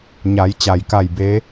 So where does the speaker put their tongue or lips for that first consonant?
palate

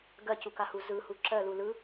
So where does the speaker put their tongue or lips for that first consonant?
velum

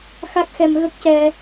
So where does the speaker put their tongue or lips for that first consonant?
velum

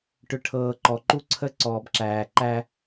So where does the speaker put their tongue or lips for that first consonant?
retroflex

